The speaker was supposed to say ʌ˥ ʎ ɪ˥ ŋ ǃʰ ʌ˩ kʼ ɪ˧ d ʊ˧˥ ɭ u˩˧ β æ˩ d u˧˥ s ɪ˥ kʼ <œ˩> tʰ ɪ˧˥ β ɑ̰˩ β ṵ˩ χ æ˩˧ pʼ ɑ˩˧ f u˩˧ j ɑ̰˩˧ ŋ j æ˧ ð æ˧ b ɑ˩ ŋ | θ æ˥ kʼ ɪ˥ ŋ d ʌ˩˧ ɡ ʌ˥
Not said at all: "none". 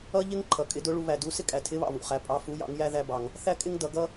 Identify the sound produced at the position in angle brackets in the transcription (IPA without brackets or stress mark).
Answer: æ˩